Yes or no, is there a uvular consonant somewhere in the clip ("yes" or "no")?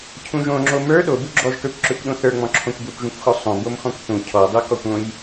no